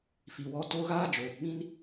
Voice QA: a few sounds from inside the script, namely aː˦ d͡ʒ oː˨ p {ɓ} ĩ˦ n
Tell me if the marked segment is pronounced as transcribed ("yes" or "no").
yes